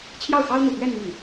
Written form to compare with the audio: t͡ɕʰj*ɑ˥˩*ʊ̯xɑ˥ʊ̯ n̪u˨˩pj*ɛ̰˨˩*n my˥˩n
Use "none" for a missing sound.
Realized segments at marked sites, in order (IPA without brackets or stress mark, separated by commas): ɑ˥˩, ɛ˥˧